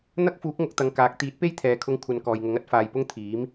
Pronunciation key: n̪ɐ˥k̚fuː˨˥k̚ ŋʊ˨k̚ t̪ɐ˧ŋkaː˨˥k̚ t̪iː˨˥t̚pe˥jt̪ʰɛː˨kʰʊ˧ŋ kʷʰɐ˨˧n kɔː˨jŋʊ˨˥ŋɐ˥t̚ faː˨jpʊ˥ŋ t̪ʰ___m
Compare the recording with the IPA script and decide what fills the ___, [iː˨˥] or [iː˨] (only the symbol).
iː˨˥